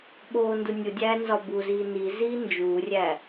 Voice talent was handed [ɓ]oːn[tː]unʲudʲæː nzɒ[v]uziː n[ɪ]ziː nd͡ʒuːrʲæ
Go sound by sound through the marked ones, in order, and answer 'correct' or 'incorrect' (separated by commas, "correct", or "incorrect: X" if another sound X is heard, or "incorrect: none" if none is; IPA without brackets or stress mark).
correct, incorrect: d, incorrect: b, incorrect: i